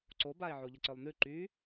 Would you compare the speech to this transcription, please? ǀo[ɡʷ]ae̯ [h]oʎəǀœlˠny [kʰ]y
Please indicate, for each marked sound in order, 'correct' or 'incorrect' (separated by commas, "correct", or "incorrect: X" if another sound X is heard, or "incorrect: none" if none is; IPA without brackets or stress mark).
incorrect: b, incorrect: ʕ, incorrect: ǃ